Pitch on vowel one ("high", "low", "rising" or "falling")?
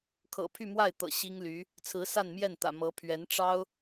low